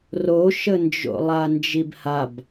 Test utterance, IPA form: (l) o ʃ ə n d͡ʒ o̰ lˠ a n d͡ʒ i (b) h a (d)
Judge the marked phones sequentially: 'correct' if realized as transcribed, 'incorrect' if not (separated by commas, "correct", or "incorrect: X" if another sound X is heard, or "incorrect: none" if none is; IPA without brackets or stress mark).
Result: incorrect: r, correct, incorrect: b